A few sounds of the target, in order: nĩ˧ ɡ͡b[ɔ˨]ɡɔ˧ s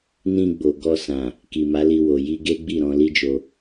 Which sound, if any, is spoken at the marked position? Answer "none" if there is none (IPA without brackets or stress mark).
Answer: o˨